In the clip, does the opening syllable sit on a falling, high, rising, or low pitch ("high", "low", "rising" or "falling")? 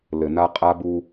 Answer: low